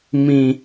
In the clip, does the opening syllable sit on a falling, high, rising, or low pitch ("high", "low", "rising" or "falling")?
low